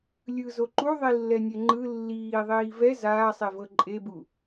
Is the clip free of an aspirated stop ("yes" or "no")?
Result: yes